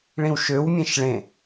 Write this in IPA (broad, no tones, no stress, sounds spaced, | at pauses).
ɭ ĩ w ʃ ø w mʲ ɛ̃ ʃ ɭ ẽ